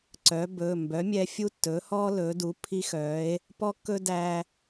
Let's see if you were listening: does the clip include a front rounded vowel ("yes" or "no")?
yes